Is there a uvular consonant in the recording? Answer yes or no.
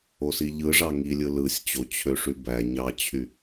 no